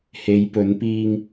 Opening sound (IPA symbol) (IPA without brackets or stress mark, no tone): h